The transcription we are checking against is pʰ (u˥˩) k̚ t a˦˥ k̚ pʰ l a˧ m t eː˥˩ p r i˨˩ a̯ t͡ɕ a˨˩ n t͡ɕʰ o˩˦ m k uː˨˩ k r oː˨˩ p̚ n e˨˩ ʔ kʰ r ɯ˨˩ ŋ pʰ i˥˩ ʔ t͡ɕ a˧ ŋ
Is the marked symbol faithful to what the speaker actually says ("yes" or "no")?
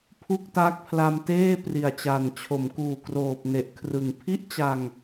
yes